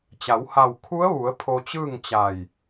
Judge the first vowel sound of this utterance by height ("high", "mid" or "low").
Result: low